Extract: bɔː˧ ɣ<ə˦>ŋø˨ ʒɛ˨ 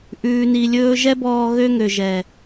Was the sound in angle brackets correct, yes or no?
no